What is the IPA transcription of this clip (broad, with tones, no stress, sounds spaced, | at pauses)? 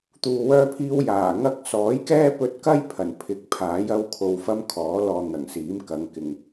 t̪ uː˧ w œː˥ pʰ iː˥ w j aː˨˩ ŋ ɐ˥ k̚ s ɔː˨˥ j k ɛː˥ p ɵ˧ t̚ k ɐ˥ j pʰ ɐ˨˩ n pʰ ɪ˨˥ k̚ pʰ aː˨˥ j ɐ˥ w kʰ o˧ w f ɐ˥ m kʰ ɔː˨˥ l ɔː˧ n̪ ɐ˨˩ ŋ s iː˨˥ m k ɐ˨˧ ŋ k ɪ˨ ŋ